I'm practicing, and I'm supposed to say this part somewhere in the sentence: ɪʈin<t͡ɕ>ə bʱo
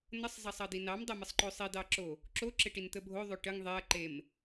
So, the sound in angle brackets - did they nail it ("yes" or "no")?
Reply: no